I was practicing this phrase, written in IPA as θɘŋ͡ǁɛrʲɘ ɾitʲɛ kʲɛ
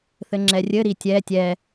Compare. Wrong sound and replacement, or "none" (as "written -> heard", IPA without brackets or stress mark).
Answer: kʲ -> tʲ